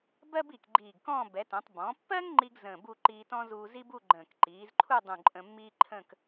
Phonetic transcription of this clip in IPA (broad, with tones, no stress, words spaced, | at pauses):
bɜ˥bi˧˩k ɡ͡ǃiː˧˩ɡkɔ̃ː˥˧ bɛ˩˧tə̃ː˩˧tˤ bɔ̃˩˧pːɜ˥ŋ ŋ͡ǃi˥ɡ zə̃ː˧˩bu˥˧ ǃiː˧tɔ̃˥ zuː˧zi˥bu˥˧ ɡ͡ǃə̃ː˧˩k ǃiː˩˧zǃʰu˥˧ dˤũ˧˩ǃʼə̃˧mːiː˥ǃʰə̃˥˧k